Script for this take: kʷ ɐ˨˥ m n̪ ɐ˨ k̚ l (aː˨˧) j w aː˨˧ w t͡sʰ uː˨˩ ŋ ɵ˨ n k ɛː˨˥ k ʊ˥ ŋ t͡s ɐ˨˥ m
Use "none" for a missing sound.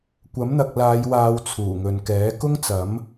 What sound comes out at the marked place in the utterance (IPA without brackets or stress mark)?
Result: aː˨˧